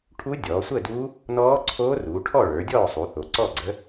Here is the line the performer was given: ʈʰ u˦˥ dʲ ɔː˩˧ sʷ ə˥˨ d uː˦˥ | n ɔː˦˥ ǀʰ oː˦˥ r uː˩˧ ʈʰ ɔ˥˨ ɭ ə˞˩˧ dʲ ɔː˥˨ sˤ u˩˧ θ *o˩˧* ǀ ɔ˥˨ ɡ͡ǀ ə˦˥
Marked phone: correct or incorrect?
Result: correct